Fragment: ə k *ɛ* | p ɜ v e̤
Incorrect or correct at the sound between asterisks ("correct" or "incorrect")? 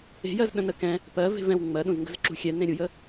incorrect